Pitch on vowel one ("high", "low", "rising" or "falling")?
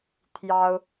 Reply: high